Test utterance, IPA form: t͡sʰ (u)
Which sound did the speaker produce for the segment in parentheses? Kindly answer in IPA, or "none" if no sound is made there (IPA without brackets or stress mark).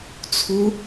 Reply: u